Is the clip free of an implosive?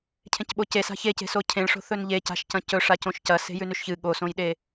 no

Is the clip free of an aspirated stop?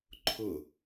no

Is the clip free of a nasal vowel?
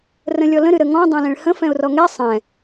no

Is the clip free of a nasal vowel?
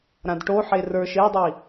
no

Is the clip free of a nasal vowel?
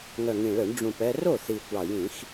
no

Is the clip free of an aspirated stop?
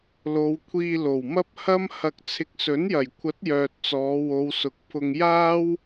no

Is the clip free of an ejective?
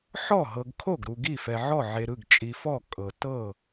no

